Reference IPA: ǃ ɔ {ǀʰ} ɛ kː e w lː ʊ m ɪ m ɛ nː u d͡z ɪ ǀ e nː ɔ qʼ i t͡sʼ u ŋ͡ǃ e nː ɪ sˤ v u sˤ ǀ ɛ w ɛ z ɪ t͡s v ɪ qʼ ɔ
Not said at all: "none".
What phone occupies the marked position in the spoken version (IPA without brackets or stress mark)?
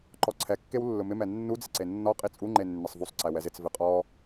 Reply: ǀʰ